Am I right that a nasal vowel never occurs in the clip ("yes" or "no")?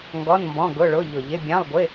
no